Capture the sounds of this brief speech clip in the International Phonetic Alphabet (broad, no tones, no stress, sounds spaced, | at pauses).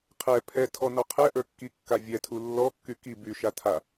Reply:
qʰ ɛ pʰ ɛ tʰ ɔ n ɔ qʰ ɛ ʔ ə˞ kː i kː a vʲ ɛ tʰ u lː ɔ kː y k i b y ʃ a tʰ a